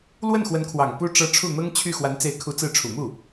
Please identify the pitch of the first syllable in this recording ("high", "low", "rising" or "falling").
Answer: falling